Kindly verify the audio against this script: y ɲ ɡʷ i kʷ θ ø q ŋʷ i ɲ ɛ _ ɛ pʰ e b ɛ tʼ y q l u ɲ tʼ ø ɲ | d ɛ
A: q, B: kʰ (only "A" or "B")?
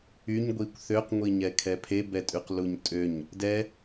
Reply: B